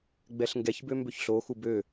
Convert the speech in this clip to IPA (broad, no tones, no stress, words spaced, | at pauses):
ɡ͡bɛɬŋɡɛçbø mbøçɬoxu bø